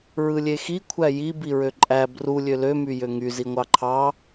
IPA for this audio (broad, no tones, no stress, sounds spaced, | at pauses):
ɹ ɯ lʲ e x i kʷʰ æ j i b i ɹ ø ǃʼ æ b r u lʲ ø l ø m y j ø ŋ y z i ŋʷ ɑ ǃʰ ɑ